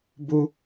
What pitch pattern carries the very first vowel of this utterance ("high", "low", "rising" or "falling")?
high